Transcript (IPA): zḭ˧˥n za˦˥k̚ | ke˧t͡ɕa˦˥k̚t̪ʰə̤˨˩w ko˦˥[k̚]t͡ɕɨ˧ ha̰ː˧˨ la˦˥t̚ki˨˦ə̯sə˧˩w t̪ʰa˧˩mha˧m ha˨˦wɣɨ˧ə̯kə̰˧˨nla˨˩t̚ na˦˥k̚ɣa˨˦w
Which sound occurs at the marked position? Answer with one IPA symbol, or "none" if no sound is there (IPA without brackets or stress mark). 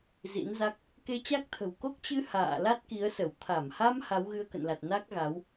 k̚